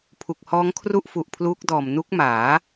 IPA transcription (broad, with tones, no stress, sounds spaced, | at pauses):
pʰ u˨˩ k̚ h ɔː˦˥ ŋ kʰ r u˥˩ ʔ f u˨˩ ʔ pʰ l uː˦˥ k̚ d ɔː˨˩ m n u˦˥ k̚ m aː˩˦